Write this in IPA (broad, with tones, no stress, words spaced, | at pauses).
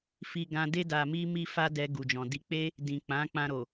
fi˧ɡã˧de˦ da˧mi˦ mi˦fa˦dɛ˧ ɡu˨d͡ʒɔ̃˨di˧k͡pe˦ | dĩ˨k͡pã˨˦ k͡pã˧ɾo˨